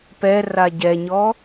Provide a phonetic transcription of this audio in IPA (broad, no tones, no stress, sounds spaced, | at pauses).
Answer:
p ɛ r a ɟ ɛ ɲ ɔ